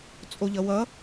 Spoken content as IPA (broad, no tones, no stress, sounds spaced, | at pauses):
t͡sʼ o ʎ ʌ w ʌ